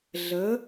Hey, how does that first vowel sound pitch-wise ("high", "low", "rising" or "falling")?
rising